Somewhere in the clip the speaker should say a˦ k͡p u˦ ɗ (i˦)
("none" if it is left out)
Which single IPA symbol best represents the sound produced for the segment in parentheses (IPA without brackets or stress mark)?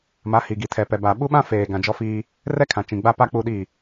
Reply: i˦˨